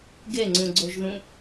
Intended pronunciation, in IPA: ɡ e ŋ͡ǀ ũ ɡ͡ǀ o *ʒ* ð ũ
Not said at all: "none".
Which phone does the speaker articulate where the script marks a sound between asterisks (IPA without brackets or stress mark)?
ʒ